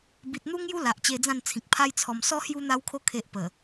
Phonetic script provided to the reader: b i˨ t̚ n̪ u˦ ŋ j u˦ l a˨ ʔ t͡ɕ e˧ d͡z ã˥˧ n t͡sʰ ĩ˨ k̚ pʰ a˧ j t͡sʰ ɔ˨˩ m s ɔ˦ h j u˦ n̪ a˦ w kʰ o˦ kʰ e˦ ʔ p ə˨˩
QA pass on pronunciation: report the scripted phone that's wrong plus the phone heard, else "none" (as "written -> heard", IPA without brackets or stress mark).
none